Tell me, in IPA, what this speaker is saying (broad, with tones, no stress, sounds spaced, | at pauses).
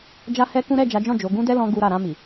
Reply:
d͡ʒ a˦ h ɛ˦ k ũ˦ ɾ ɛ˦˨ d͡ʒ a˨˦ d͡ʒ ɔ̃˦˨ d͡ʒ o˨˦ ɡ ũ˦ d ɛ˦ l ɔ̃˧ ɡ u˦ ɾ a˦˨ ɾ ã˧ m i˨